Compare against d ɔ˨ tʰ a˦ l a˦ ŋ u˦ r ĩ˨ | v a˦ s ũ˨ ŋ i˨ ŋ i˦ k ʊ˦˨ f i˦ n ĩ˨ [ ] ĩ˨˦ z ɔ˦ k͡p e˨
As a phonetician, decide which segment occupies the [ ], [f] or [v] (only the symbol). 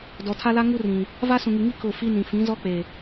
f